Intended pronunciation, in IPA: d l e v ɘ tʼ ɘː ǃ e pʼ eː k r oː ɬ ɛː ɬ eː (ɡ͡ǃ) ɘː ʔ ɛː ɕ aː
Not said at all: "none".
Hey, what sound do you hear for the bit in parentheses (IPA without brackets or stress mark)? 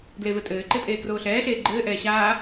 ɡ͡ǃ